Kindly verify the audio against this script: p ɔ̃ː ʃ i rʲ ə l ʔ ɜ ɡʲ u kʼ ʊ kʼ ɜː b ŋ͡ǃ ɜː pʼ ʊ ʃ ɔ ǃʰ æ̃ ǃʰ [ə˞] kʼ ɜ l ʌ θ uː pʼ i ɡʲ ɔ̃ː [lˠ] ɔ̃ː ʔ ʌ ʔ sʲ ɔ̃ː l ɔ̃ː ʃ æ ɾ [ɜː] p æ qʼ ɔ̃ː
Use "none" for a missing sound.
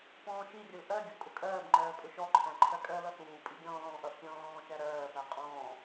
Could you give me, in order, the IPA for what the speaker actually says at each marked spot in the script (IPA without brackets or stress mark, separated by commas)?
ɜ, l, ɜː